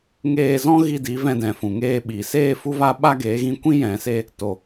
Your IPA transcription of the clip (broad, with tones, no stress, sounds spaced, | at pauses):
ŋ eː˧ z ɔ̃˦ ɣ i˧ d i˨˦ v ɛ̃˧ d ɛ̃˨ f ũ˨ ŋ eː˧ ɓ i˨ s eː˧ f u˧ v a˧ ɓ a˦ ɡ eː˨˦ ɣ ĩ˧ kʷ ĩ˦ j ɛ̃˨ s e˧ | t o˨